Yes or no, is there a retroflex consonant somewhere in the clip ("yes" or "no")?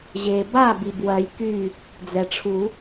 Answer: yes